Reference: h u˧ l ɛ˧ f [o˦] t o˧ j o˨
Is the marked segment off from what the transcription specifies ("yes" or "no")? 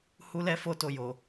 yes